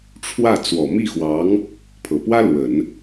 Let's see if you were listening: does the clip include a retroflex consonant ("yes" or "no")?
yes